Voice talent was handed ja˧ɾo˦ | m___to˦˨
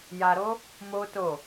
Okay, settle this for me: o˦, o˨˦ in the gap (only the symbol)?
o˦